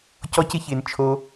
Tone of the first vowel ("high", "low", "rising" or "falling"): high